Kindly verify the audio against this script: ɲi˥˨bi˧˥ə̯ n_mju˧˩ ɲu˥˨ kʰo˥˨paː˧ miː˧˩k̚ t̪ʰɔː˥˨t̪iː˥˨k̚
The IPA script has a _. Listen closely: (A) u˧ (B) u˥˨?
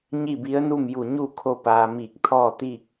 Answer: B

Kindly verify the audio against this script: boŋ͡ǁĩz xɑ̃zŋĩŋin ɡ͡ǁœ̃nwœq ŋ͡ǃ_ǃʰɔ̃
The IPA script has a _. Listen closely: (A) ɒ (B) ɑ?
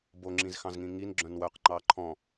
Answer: B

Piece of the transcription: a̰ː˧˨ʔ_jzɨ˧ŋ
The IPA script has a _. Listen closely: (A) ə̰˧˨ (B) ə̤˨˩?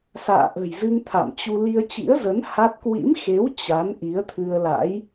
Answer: B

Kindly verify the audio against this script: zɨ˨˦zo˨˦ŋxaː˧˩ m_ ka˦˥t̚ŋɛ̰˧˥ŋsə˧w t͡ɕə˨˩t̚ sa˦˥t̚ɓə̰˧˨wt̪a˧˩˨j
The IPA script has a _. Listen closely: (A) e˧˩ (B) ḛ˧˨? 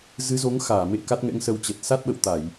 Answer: B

